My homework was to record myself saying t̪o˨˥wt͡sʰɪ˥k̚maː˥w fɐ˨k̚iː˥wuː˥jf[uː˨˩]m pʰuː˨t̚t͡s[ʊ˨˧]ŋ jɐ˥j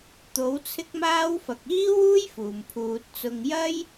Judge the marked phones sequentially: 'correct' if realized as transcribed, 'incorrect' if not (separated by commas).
correct, incorrect